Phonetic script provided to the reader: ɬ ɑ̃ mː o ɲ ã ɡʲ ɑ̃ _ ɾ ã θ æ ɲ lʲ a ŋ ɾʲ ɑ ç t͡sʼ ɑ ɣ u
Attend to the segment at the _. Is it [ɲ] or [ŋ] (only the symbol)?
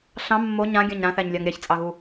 ɲ